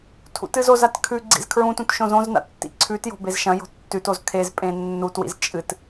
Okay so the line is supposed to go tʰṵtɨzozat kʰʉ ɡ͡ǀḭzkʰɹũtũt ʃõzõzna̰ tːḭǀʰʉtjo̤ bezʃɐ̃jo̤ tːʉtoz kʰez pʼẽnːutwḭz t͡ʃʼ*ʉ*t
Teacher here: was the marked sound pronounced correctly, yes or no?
no